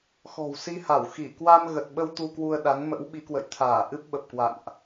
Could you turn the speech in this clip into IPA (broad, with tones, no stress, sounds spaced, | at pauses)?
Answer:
x ɔ̤˨˩ w s i˧ h a˧˩ w x i˧˩ k w a˧ m ɣ ə˨˩ t̚ ɓ ə˧ w t̪ u˧ k w u˧ ə̯ ɗ a˨˦ n m ə̰˧˥ w ɓ i˨˦ k w ə̰˧˨ j t̪ʰ aː˧˩ ʔ ɨ˦˥ p̚ ɓ ə˨˩ p̚ k w a̰˧˨ n ʔ